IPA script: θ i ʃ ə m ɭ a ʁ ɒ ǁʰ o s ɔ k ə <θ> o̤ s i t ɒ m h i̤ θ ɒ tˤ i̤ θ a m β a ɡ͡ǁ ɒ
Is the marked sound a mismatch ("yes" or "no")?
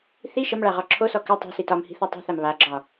yes